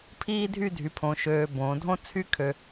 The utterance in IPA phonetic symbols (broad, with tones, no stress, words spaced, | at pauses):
pʰiː˥dʱy˥˧dʱy˩˧pʰõ˩˧ ʃøː˧ bõː˩˧dʱõ˥ t͡sʰy˥kʰø˧